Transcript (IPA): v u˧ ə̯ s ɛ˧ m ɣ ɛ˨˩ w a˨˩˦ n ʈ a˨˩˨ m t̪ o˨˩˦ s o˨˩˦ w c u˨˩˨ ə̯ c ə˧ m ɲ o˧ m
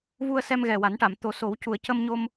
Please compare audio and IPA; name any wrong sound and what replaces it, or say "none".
none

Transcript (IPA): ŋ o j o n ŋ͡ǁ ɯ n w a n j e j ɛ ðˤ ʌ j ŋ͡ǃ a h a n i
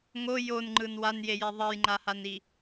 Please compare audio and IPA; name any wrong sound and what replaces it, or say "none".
ŋ͡ǁ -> ŋ͡ǃ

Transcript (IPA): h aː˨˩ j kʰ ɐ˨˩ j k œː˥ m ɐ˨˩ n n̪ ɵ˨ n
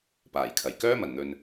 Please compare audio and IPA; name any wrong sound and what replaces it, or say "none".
h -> p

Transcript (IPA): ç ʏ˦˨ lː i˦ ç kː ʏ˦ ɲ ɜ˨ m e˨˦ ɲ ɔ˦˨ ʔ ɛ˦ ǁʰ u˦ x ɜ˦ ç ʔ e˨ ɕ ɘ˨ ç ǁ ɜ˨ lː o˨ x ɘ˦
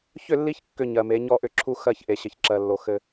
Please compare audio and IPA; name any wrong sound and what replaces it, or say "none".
ɛ˦ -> ʏ˦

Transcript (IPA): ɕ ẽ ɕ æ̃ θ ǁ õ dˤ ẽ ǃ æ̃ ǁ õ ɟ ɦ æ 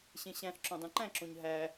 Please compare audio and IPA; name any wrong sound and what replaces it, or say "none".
ɟ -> ɲ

